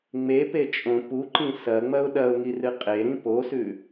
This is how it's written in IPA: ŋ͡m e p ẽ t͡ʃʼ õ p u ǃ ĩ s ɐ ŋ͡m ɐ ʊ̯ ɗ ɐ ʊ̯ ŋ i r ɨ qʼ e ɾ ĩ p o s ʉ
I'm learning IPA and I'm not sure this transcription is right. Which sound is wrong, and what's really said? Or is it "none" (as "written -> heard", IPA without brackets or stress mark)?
ẽ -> e